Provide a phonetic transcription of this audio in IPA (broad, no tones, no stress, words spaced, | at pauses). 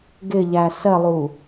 ɡɪʎæ sɜlˠu